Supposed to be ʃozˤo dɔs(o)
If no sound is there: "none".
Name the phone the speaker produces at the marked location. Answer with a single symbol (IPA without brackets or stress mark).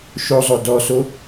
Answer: o